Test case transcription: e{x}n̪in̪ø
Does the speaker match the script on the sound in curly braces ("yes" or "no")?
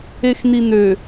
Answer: yes